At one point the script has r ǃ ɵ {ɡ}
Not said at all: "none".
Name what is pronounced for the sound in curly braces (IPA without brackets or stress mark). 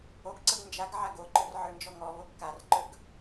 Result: ɡ